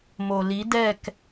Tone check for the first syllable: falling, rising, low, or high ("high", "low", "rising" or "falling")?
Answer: low